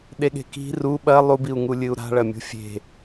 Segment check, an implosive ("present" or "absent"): present